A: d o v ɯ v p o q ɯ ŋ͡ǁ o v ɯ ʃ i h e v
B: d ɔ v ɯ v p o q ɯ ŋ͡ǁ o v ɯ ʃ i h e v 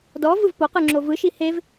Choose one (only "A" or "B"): B